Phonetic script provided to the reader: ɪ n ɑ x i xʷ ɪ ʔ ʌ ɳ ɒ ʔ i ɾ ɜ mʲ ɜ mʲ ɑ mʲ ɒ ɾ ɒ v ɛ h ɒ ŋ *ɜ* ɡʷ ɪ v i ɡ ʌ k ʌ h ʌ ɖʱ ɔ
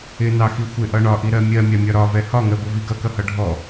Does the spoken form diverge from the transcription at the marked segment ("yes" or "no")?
no